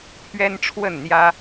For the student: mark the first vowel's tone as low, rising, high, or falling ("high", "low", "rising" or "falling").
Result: high